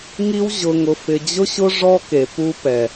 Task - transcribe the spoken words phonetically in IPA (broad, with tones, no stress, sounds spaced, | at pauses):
ŋ i˦ w ʑ ʊ˨ ŋ ʊ˨ f ɪ˨ d͡ʑ ʊ˦ ɕ ʊ˦ ʐ ɔ˦ k e˨ p u˦ p ɛ˨